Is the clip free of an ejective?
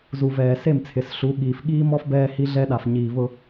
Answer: yes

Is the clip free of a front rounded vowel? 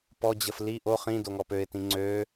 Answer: no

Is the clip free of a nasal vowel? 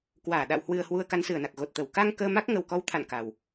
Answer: yes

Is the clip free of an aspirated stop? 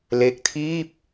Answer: no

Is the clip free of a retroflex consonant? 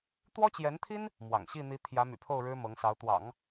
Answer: no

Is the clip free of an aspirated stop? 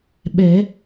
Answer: yes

